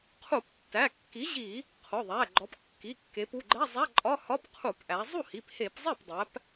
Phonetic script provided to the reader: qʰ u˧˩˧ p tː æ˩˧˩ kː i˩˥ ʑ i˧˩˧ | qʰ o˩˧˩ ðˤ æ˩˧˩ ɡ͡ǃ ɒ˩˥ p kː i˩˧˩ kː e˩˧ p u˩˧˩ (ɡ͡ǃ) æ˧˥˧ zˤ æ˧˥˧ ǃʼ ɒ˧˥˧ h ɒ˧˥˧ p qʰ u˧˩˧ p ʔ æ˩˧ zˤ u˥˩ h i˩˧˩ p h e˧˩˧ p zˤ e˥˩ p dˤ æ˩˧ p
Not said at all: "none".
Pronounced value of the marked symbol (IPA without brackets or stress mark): ɡ͡ǃ